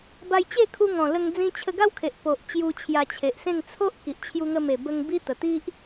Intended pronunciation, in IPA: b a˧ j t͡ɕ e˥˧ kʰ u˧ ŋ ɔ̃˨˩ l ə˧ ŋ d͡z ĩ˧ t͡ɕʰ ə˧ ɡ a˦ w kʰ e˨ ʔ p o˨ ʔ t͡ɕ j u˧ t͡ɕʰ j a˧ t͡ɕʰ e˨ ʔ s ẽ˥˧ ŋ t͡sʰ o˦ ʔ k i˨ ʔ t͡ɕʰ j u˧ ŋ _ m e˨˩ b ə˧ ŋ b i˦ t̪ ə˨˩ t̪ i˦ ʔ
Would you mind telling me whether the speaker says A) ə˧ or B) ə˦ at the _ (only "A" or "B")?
A